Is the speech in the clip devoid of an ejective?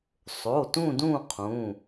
yes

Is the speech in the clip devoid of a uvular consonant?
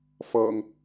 yes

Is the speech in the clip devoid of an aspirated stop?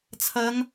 no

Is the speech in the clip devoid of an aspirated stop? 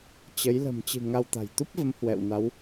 yes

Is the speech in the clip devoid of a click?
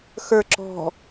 no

